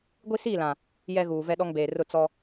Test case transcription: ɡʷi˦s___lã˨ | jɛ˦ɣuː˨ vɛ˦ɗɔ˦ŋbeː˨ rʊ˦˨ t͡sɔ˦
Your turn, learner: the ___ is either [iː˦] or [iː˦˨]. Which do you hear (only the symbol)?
iː˦˨